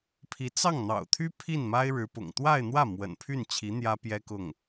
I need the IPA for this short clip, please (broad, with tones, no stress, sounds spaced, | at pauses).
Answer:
pʰ i˧˥ t͡s ɑ˥˩ ŋ n̪ ɑ̰˨˩ ʊ̯ t̪ʰ y˥ pʰ i˥˩ n m a˥ ɪ̯ ɻ ɻ̩˧˥ p ʊ̰˨˩ ŋ t̪ w a˥˧ ɪ̯ n̪ w ä˥˩ m w ə̰˨˩ n pʰ y˥˩ n t͡ɕʰ i˧˥ n̪ j ä˥ p j ɛ˥ k ʊ˥˩ ŋ